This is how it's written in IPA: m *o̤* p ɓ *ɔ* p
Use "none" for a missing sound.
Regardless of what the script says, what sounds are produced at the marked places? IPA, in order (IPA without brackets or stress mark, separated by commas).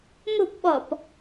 o̤, ɔ